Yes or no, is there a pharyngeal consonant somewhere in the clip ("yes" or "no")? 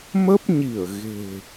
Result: no